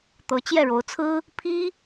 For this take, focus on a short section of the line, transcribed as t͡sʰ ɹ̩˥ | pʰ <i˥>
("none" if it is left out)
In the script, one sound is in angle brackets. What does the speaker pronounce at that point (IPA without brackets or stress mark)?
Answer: i˥